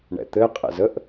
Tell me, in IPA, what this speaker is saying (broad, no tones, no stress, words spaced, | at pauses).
ɳɛ̰t̪ɘ qʼɛ̰zəʔ